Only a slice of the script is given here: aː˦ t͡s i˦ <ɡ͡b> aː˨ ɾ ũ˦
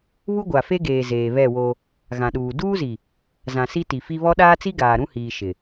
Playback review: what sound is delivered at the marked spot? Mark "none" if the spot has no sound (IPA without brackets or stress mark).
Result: ɡ